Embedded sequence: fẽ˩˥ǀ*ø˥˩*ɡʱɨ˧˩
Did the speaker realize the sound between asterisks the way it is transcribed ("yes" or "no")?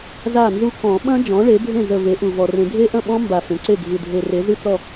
no